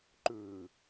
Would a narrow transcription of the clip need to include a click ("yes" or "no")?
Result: yes